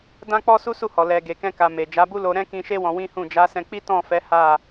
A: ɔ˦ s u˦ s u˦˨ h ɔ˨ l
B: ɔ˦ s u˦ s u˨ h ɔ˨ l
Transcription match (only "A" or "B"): A